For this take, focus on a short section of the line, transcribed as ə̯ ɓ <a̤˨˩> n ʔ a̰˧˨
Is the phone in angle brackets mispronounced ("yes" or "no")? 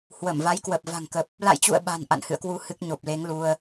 no